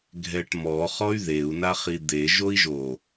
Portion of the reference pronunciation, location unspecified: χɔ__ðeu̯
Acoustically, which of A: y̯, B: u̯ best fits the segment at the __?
A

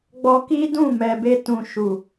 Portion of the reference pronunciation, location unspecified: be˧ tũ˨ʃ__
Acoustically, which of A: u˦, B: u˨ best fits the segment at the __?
B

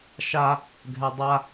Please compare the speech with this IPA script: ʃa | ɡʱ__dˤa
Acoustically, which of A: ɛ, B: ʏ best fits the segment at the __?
A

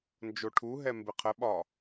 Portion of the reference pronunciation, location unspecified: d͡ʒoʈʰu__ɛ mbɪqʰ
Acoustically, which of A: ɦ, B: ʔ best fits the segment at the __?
A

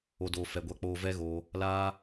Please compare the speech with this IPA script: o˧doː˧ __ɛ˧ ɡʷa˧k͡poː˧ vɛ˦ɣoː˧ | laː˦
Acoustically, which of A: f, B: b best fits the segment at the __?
A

